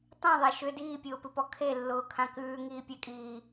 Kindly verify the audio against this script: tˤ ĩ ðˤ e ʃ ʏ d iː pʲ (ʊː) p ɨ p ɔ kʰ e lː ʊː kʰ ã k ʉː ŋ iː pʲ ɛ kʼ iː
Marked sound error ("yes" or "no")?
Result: no